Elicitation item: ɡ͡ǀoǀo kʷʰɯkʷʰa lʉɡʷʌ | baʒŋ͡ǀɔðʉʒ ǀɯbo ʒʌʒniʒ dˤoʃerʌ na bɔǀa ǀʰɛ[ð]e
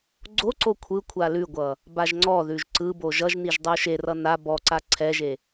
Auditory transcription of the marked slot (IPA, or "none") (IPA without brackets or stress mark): ʒ